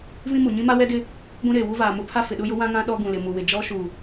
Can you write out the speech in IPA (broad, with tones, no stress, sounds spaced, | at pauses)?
v ĩ˦ m u˨ ɲ ĩ˦ m a˦ w ɛ˦ d ɪ˦ | ɡʷ ĩ˦ ɾ eː˨ w u˦ v aː˨ m ʊ˦ pʰ a˦ f ɪ˨ ɗ ʊ˦ j ʊ˦ w ã˦ ŋ ã˦ ɗ ɔ˦ ɡ ũ˨ l ɪ˨ m u˨ w ɪ˨ d͡ʒ ɔ˦ ʃ u˨